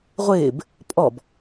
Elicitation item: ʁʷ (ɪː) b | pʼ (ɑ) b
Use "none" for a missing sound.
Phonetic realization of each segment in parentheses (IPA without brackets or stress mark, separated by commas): ɪː, ɔ